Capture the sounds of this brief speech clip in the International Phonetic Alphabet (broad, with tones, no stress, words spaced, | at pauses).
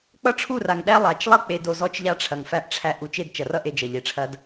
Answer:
k͡pʌ˦ʈ͡ʂʰu˦˨ra˨ŋɗæ˦ lˠa˨t͡ʃ lˠʌ˦k͡pe˨do˨ zɔ˦t͡ʃʎa˦ʈ͡ʂʰɐ˨ŋ fæ˦ʔʈ͡ʂʰæ˦ ʔu˨t͡ʃe˦˨d t͡ʃɐ˨rʌ˦˨ʔ e˦d͡ʒʌ˨ ʎe˨ʈ͡ʂʰɐ˦d